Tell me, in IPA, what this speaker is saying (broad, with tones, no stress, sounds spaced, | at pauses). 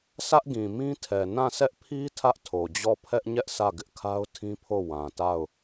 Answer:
sʰ ä˦ ʔ ɡ ĩ˨ m ĩ˦ tʰ ɛ˨ n ã˦˨ sʰ ɛ˦ ʔ pʰ i˦ tʰ ä˦ ʔ tʰ o˨ d͡ʑ ɔ˦˨ pʰ ɛ˦ ʔ ɲ ɛ˦ ʔ sʰ ä˦˨ ɡ ɪ˦ ʔ kʰ a˦ ʊ̯ tʰ ĩ˦ pʰ o˦˨ w ã˨ t a˦˨ ʊ̯